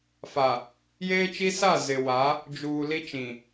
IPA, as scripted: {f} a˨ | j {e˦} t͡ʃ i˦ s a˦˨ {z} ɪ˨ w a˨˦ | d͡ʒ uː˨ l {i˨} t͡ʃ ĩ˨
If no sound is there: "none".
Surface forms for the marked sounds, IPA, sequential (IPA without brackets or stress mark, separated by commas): f, eː˦, z, i˦